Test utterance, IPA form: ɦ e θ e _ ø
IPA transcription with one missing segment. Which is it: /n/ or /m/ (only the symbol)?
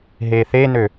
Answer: n